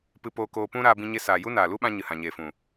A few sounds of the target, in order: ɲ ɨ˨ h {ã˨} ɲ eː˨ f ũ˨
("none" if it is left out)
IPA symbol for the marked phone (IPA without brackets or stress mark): ã˨